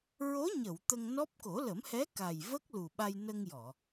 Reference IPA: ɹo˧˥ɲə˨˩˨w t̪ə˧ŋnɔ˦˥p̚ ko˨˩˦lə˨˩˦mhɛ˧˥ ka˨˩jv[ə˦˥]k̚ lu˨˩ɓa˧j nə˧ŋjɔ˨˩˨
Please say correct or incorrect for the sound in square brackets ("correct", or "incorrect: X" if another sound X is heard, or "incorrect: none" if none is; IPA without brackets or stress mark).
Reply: correct